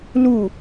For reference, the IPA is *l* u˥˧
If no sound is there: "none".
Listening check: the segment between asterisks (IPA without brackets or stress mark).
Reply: l